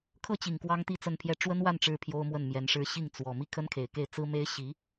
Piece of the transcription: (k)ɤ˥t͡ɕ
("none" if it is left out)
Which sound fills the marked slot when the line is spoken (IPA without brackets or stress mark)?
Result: kʰ